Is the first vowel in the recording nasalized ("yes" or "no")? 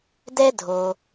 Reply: no